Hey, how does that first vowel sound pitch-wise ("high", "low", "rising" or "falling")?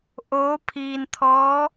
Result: rising